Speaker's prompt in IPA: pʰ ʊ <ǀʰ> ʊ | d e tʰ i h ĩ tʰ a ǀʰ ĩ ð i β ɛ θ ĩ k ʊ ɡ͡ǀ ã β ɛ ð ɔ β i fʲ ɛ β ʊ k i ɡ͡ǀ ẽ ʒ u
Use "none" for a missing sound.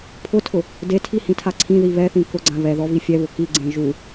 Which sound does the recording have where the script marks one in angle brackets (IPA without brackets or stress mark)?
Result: tʰ